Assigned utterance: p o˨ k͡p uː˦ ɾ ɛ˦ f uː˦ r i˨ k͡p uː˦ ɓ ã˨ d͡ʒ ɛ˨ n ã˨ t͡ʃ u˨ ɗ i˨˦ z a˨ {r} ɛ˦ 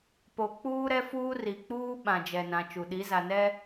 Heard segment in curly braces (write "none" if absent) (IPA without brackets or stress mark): n